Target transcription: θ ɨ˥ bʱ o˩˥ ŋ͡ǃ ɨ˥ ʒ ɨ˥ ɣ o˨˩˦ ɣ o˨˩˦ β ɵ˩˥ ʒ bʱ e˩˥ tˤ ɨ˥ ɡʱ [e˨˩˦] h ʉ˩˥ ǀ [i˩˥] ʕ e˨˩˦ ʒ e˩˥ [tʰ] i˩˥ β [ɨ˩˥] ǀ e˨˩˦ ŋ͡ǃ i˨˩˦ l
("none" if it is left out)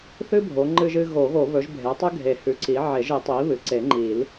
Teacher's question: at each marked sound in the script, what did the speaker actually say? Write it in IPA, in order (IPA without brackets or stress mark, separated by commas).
e˨˩˦, i˩˥, tˤ, ɨ˩˥